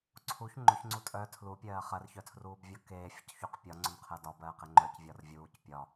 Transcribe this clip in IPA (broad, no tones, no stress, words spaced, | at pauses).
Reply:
ǀʰuç ŋ͡ǃʊçŋ͡ǀu tʼœ tʰlupʲɜː χɜrçœtʰruːbvʲɒ keːfʲʊcçuq pʲɒŋ͡ǀʊnqʰɜ dɒbɜːqe ŋ͡ǃœcvʲɒr vʲuːc pʲɒ